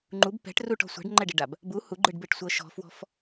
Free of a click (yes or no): no